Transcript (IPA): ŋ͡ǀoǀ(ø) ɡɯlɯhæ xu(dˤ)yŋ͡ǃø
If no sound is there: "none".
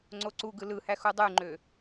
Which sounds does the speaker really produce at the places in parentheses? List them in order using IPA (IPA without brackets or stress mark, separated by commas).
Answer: u, dˤ